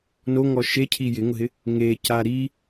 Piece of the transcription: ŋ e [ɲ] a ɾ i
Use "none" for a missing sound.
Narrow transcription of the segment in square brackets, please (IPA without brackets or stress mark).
c